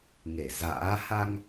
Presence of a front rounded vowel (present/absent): absent